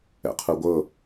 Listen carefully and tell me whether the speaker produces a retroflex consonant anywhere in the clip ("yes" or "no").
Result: no